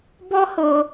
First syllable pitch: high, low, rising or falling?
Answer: high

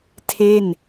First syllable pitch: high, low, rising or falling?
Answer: falling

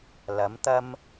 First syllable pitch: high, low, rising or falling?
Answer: rising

